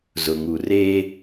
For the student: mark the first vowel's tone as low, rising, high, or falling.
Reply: low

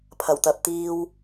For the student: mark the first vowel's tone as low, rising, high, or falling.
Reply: low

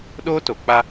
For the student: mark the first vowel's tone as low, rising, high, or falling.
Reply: high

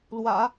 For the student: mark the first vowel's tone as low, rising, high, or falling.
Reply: low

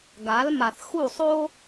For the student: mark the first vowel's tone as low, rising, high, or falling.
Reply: rising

